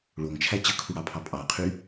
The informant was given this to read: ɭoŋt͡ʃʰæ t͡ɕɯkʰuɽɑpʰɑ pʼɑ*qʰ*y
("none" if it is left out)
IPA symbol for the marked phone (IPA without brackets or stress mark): qʰ